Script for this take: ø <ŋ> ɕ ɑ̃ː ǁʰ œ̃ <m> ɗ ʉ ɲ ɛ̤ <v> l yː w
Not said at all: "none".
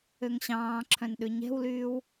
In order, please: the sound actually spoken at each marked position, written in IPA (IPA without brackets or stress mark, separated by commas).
ŋ, n, w